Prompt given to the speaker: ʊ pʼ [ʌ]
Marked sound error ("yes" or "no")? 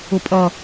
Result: no